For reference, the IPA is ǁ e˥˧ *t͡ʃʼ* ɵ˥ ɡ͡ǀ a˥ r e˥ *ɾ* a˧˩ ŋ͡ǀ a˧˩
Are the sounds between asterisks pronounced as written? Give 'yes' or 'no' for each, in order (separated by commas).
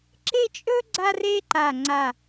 yes, no